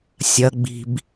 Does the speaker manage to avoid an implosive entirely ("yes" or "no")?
yes